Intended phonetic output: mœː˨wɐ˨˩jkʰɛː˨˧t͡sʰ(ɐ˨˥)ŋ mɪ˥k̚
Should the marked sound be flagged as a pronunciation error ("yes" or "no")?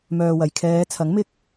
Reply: no